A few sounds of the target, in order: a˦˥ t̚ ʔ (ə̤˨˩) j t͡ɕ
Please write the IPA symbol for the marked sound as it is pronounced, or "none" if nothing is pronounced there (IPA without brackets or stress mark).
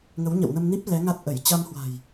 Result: ə˧˩